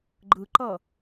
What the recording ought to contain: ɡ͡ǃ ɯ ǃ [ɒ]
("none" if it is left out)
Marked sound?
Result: ʌ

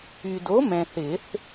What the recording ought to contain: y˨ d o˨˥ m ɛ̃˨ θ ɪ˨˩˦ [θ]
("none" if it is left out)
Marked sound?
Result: θ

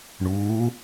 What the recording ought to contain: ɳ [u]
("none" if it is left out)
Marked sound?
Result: uː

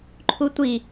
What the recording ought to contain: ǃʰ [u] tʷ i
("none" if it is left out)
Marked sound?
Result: u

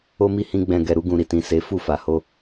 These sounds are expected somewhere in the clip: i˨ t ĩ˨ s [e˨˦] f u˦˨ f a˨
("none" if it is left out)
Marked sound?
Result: e˨˦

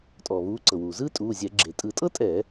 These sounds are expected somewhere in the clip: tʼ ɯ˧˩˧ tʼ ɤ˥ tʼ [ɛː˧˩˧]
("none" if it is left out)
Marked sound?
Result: ɛː˧˩˧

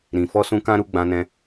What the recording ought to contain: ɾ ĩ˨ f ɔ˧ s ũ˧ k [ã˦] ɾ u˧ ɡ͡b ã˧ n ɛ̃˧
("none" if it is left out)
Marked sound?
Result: ã˦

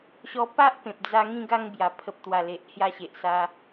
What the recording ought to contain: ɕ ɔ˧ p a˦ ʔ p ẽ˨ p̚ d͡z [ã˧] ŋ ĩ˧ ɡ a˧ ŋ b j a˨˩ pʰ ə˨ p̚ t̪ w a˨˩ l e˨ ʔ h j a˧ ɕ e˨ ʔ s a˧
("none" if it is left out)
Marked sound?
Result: a˧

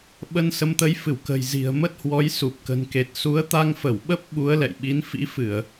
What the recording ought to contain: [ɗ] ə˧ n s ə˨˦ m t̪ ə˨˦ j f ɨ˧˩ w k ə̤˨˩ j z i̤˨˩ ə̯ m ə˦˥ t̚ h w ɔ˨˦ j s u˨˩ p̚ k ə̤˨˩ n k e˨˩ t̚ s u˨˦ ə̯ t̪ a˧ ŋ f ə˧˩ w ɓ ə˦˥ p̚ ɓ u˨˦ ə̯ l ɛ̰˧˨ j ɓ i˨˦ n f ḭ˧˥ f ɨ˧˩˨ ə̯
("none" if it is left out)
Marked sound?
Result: ɓ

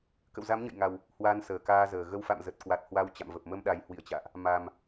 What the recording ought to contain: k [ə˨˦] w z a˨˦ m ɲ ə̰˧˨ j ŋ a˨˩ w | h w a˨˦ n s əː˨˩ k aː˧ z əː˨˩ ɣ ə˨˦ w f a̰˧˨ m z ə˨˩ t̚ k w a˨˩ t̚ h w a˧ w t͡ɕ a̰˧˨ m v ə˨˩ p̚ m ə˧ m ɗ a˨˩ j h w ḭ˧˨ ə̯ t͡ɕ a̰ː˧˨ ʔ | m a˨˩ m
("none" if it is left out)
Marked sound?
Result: ə̰˧˨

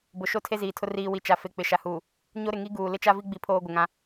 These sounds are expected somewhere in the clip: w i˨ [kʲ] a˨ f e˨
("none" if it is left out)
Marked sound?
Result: t͡ʃ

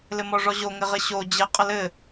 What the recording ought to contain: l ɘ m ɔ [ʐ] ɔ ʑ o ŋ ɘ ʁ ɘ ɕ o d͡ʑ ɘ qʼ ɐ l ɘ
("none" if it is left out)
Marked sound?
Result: ʐ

